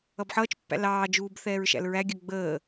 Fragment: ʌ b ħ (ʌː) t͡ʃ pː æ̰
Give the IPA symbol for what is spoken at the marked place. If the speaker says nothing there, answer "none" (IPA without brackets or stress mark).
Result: ʌː